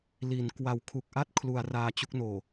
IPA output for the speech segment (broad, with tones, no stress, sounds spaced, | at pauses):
l i˩˦ n k w a˨˩ w kʰ u˨˩ k̚ ʔ a˥˩ t̚ kʰ l u˩˦ a̯ r aː˧ t͡ɕ u˦˥ k̚ n oː˨˩